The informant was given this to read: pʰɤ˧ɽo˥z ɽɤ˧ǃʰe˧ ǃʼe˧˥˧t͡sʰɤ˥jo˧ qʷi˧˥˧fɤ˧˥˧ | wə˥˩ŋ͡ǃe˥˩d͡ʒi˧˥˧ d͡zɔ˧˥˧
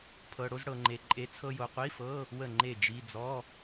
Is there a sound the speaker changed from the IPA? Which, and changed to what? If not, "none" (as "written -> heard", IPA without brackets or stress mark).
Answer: ǃʰ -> ŋ͡ǃ